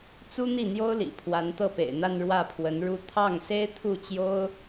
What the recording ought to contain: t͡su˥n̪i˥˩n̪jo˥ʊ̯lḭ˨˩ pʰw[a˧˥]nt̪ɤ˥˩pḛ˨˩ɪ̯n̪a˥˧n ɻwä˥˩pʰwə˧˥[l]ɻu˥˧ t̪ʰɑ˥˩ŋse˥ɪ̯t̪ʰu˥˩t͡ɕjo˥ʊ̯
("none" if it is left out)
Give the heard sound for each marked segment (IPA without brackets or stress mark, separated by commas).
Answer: a˧˥, n